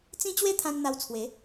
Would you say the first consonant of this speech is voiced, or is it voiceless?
voiceless